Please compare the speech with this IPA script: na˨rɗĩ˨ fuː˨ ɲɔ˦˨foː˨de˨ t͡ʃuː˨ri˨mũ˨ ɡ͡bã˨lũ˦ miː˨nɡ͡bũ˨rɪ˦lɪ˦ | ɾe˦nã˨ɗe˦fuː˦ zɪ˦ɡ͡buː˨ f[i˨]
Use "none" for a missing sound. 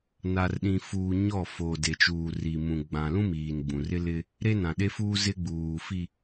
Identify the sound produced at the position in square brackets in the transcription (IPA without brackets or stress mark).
i˨